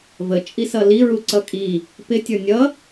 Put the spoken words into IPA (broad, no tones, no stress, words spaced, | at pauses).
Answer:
vət͡ʃʼisʌ liɹuǀʌ kʼi | pɪtʲə˞ nʲʌ